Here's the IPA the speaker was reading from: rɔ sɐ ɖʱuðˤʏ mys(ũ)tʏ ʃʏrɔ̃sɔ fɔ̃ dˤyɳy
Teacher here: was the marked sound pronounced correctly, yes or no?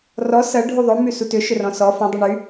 no